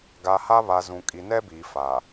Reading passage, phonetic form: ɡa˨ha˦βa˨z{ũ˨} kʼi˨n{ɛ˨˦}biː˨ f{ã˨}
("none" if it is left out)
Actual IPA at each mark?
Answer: ũ˨, ɛ˦, a˨

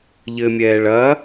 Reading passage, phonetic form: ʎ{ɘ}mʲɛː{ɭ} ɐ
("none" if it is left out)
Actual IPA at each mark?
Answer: ɘ, ɭ

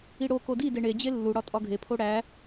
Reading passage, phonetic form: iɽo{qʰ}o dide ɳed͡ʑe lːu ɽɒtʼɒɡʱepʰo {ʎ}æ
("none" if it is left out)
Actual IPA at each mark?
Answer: k, ɽ

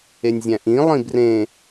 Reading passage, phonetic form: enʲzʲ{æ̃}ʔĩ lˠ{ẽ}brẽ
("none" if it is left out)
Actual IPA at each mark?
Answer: æ̃, ĩ

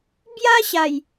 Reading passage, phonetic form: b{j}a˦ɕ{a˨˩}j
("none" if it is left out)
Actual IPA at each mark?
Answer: j, a˨˩

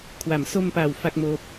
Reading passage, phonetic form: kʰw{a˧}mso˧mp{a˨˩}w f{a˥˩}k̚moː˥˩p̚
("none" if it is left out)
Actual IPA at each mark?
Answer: a˩˦, a˨˩, a˥˩

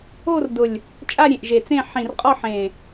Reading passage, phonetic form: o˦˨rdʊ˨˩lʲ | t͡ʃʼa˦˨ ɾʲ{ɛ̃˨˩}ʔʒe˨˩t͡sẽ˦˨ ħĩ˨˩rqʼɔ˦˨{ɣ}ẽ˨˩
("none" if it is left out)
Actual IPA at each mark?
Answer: ẽ˨˩, ħ

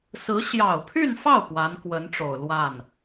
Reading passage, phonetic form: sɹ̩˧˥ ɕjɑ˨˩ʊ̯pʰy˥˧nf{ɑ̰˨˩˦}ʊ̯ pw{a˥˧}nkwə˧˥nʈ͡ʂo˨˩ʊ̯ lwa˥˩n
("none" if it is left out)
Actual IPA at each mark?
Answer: ɑ˥˩, a˧˥

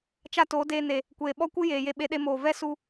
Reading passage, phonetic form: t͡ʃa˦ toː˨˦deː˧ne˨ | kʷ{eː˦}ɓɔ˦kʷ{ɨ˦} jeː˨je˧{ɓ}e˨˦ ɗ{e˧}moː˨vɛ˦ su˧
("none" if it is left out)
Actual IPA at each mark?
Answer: eː˨, ɨ˦, ɓ, e˧

